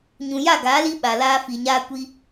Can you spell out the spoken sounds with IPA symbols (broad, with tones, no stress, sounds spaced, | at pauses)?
ɲ ũ˨ j a˦˨ ɡ aː˨˦ l i˦ ɓ a˨ l aː˦ f i˨ ɲ aː˦ kʷ i˦